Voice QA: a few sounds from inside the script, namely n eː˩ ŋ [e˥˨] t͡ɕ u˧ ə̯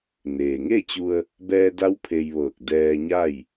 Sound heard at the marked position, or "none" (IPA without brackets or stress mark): e˥˨